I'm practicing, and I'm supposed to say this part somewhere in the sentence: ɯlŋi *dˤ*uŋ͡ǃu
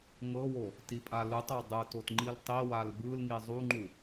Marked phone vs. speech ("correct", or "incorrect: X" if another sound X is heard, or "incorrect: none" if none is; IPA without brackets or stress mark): incorrect: zˤ